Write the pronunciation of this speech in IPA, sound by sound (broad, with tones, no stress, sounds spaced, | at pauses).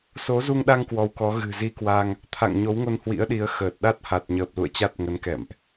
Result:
s o˨˦ z u˧ ŋ ɗ a˧ ŋ k w ɔ˨˦ w k ɔ˨˦ ɣ ɨ̤˨˩ z i˧ k w a˧ ŋ | t̪ʰ a̰˧˨ ŋ ɲ o˨˦ w ŋ o˧ n h w ḭ˧˥ ə̯ ɗ i˨˦ ə̯ x əː˨˩ t̚ ɗ a˦˥ t̚ h a˨˩ t̚ ɲ əː˨˩ p̚ l ṵ˧˨ ə̯ t͡ɕ a˦˥ t̚ ŋ ə˨˦ n k ɛ̰˧˨ m ʔ